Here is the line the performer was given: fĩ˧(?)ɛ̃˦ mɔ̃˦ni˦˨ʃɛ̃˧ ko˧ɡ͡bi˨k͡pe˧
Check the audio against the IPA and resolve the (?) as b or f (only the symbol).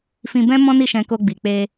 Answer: b